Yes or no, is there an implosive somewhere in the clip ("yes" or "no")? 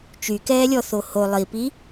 no